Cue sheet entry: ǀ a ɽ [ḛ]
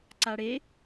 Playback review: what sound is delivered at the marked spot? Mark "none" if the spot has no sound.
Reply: e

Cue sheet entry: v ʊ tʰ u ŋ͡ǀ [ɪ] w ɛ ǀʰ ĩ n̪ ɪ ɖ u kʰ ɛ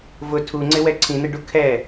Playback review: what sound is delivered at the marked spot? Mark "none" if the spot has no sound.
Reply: ɪ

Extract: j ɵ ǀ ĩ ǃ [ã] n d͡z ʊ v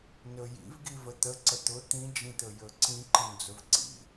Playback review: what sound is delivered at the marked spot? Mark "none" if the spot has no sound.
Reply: ə̃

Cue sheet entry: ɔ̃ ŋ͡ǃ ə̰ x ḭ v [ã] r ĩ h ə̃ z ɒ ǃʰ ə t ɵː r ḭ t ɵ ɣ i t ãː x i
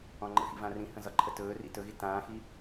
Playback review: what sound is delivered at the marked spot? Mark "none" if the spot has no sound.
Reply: ã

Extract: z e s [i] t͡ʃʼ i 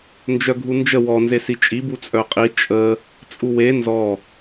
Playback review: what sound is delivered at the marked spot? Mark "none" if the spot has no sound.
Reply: i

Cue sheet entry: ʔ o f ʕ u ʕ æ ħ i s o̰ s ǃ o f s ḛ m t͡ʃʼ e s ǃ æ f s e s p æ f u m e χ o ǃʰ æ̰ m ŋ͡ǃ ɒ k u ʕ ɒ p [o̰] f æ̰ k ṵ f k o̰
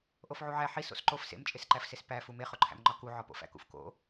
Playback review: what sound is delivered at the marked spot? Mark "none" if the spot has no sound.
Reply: o̰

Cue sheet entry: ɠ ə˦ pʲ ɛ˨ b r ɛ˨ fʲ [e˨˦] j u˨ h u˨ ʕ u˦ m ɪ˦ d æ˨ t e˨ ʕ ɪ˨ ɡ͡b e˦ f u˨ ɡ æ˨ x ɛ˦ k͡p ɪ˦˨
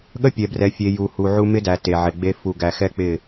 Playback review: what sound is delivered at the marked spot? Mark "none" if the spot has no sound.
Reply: e˨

